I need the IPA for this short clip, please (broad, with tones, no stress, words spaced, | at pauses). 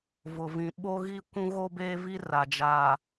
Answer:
vʊ˨vĩ˨ ɓo˦ɣi˦kʷũ˦ ɣo˦beː˦vi˦ ra˨ d͡ʒa˨